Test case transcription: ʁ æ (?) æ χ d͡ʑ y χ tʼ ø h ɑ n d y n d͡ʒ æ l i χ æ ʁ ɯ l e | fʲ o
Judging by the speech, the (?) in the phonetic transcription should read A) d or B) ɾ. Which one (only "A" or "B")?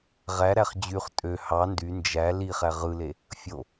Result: B